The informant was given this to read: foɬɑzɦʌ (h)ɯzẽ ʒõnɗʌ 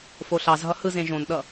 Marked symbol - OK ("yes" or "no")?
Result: yes